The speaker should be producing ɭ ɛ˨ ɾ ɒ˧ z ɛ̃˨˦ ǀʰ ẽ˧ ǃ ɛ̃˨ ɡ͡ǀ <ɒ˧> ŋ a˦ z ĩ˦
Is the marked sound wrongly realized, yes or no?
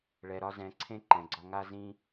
no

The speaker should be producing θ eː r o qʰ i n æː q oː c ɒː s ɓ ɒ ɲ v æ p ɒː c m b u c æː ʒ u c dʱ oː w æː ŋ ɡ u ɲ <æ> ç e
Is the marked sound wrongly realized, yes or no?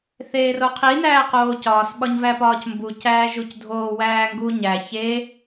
no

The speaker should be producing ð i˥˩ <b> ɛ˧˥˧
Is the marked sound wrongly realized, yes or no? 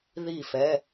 yes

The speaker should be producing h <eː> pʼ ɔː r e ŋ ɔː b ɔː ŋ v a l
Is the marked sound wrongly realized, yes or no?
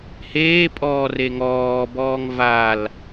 no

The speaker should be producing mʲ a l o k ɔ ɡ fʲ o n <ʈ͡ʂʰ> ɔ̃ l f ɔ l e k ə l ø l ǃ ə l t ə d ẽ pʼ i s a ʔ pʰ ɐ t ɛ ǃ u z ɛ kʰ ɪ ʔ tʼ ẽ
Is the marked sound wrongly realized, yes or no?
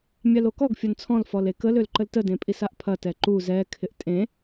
yes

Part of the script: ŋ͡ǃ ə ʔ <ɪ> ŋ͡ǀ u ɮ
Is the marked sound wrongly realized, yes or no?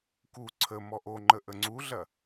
yes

